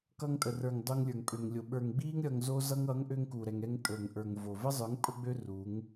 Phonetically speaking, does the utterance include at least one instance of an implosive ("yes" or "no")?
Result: yes